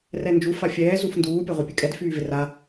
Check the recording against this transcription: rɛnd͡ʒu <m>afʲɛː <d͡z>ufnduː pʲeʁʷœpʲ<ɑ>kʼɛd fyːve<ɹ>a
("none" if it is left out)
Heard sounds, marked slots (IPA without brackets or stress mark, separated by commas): f, z, ə, r